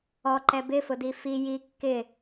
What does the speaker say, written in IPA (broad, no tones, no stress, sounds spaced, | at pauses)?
ɔ ǃ ɛ b ɪ f ʊ d i f i j i kː ɪ